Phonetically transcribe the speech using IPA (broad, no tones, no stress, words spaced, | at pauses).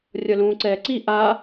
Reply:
rʲʌlũːǀɛːǀi ʔa